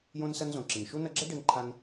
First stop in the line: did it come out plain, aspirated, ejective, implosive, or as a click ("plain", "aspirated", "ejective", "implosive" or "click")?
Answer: click